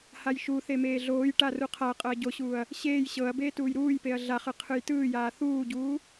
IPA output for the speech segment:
h a j ʃ u θ e m eː ɮ oː j ʈ a r u qʰ a ɐ̯ qʼ ɤ ɐ̯ ɟ o ɕ uː ɐ̯ | ɕ eː j ɕ ɤ ɐ̯ b eː t uː j ɾ uː j p e ɐ̯ ɮ a χ ɯ qʰ ɯ j t ɯː j aː θ uː ɟ uː

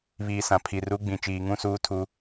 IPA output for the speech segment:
β iː˨ s ã˨ pʰ i˨ r u˨˦ ɡ͡b ĩ˨ t͡ʃ iː˨ ŋ ũ˦ s uː˦ tʰ u˦

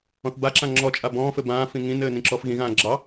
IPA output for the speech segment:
ɔ̃ θ b a ǁ ã ŋ͡ǁ ɔ t͡ʃʼ a b ɔ̃ː f ɘ b ãː f ĩ ŋ ĩ n ɘː n ĩ ǁ ɔ f ɣ ĩ ɣ ãː ɡ͡ǁ ɑ

